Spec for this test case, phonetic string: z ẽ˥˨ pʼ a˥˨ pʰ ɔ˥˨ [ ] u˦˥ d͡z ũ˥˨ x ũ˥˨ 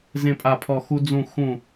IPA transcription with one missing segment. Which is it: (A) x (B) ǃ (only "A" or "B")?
A